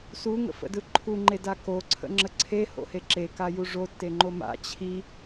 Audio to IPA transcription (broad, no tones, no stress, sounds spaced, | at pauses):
s u ŋ ə̰ f ə̰ d ɯ ǃʰ u ŋ͡ǃ e d a k o ǀʰ ə̰ ŋ͡ǁ ə ǀʰ e h o̰ h e ǁ e k a j u ʐ o tː e ŋ͡ǃ o m a̰ t͡ɕʰ i